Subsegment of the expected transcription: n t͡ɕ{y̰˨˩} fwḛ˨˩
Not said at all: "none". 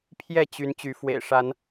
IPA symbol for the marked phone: y˨˦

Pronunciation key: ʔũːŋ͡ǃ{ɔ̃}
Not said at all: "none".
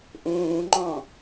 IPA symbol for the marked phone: ɔ̃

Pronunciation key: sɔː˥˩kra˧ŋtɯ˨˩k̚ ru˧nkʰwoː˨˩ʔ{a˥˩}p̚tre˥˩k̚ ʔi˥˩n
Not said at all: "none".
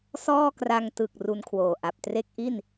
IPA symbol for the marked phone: a˨˩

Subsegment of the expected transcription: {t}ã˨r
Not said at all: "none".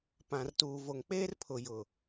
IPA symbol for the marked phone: p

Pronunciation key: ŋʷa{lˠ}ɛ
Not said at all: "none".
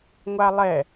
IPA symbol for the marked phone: lˠ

